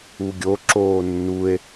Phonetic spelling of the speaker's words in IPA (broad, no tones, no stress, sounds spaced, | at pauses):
u ɡʲ o ǁ oː nː u e̯